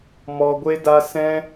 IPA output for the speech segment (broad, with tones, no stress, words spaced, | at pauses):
mɔ˧ ɡʷe˦da˦ sɛ̃˦